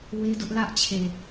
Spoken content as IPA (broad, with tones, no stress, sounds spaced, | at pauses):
w e˦ d ʊ˦ ʔ l ä˦ ʔ t͡ɕʰ e˨